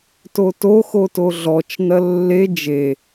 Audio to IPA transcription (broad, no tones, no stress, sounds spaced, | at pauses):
t o t o x o t o ɮ ɔ t͡ʃ n ɐ lː e d͡ʒ e